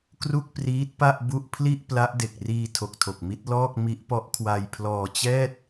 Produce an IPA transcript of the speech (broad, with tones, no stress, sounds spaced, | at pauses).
k r u˥˩ k̚ p r iː˦˥ t̚ p a˥˩ ʔ b u˥˩ ʔ pʰ l i˥˩ ʔ p l a˦˥ ʔ d e˨˩ k̚ r iː˧ tʰ o˨˩ k̚ tʰ o˨˩ k̚ m i˦˥ t̚ l ɔː˥˩ k̚ m i˦˥ ʔ p ɔ˦˥ ʔ kʰ w a˧ j pʰ l ɔː˧ t͡ɕ ɛː˥˩ t̚